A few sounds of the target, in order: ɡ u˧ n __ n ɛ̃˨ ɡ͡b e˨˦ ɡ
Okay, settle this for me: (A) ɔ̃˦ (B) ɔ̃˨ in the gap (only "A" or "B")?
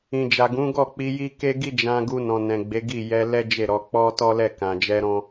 B